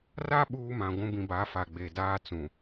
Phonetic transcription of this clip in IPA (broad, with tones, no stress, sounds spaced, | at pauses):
r a˦ ɓ uː˦ m ã˨ ɡʷ ũ˦ b ĩ˨ b a˨˦ f a˨ ɡ͡b e˨ d aː˦ t͡s ũ˨